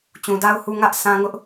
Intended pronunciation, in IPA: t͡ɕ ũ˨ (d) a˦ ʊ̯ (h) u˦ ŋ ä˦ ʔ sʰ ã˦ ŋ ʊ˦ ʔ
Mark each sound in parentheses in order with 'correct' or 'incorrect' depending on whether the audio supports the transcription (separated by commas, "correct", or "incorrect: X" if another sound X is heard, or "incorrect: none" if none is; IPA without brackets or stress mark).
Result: correct, correct